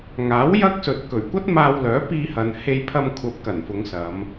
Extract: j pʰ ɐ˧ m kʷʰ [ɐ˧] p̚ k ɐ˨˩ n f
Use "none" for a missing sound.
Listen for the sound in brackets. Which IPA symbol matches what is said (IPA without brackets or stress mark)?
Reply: ɐ˨˥